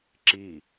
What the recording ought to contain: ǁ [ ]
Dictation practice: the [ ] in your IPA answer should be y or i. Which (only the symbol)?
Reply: i